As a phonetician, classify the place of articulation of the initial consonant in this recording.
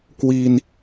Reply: velar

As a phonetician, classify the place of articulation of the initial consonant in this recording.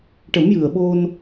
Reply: retroflex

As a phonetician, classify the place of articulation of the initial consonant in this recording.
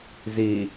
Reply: alveolar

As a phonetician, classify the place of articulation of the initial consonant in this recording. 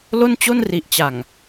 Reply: alveolar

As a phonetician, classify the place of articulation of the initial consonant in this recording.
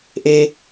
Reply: glottal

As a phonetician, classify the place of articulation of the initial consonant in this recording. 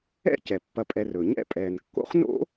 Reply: palatal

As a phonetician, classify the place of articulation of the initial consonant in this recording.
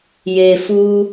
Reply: palatal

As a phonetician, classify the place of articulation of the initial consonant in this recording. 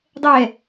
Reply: alveolar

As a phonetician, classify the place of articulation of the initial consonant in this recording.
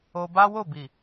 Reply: labial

